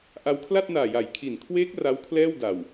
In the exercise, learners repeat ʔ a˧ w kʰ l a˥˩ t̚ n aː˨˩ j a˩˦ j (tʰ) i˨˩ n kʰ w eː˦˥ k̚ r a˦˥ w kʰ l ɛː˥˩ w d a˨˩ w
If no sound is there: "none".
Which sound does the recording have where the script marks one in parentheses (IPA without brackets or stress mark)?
kʰ